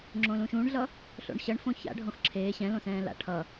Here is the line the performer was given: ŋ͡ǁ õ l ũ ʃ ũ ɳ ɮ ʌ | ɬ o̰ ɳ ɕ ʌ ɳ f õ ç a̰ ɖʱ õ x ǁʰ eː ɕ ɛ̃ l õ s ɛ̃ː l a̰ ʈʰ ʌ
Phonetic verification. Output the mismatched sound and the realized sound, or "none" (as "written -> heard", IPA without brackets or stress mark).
none